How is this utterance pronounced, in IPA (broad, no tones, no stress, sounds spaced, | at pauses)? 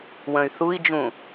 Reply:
w ə̃ y̯ θ u i̯ d͡ʒ ũ